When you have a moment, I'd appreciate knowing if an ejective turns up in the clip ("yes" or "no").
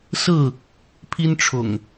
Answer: no